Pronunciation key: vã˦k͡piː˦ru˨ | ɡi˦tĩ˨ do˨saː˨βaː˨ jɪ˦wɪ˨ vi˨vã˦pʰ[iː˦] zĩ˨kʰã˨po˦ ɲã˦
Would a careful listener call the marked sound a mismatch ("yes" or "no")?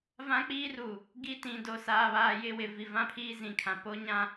no